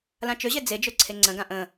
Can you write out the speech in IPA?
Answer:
l ã t͡ʃ ø ʑ e d͡z e d͡ʒ ø ǀʰ e ŋ͡ǀ ə̃ ɡ ã ʔ ə̃

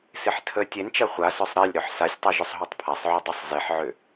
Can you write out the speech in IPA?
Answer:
s ɪ ħ tʰ ə tʲ e n t͡ʃ a χʷ a s œ sˤ ɾ ɛ lʲ ɾ œ ħ s a sʲ tˤ e ʒ ʊ sˤ ɦ ɔ tˤ pʰ a sˤ ʕ u dˤ ə sˤ z e ħ ʕ ø

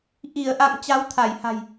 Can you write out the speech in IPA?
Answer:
ʔ i˧˩ ə̯ ʔ a̰˧˨ ŋ t͡ɕ a˨˦ w t̪ʰ a˧˩ j h a̤˨˩ j

